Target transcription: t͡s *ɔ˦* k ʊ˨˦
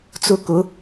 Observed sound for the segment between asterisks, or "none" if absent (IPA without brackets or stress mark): ʊ˦